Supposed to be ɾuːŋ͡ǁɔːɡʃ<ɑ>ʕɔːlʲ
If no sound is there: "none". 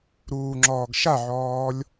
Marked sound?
a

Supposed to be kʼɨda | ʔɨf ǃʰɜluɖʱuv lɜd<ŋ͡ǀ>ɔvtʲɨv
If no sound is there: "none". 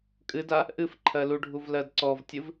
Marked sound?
ǀ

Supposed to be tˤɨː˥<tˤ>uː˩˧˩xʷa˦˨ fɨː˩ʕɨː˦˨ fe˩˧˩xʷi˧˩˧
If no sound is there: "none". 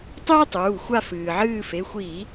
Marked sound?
tˤ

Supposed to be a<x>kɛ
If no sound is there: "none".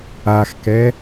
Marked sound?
x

